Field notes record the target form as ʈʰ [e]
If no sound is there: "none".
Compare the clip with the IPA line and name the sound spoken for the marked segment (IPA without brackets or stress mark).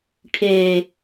e